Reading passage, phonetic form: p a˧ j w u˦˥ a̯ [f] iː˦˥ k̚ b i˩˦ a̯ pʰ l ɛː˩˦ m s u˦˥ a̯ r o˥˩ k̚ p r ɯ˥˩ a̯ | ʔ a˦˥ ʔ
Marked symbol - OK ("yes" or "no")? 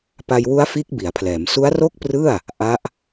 yes